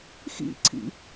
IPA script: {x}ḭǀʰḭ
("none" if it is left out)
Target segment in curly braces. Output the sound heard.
x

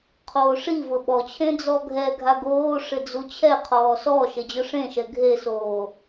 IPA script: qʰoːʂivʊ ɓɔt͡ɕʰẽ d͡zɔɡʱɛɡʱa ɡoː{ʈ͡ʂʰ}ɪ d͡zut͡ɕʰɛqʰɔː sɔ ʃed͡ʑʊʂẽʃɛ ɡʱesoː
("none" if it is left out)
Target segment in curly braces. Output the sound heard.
ʂ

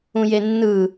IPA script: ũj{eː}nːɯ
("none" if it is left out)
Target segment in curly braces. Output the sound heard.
e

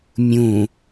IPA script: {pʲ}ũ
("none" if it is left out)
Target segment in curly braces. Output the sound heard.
mʲ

